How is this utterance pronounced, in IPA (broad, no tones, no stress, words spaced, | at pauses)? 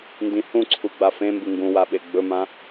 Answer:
ndĩhũǀʰu ɡ͡bafẽmbɨ ŋɡũwa ɓeɡ͡bɵmã